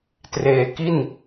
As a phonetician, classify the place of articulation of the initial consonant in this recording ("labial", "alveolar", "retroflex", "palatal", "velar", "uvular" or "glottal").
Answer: alveolar